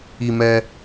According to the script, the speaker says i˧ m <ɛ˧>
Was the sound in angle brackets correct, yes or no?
yes